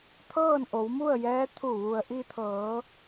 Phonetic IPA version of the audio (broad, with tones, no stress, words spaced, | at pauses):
t̪ʰɤː˥˨nʔo˩˧wmu˥˨ə̯jɛː˧˥ t̪ʰu˧˩ʋu˩ə̯ʔi˧t̪ʰɤː˩˧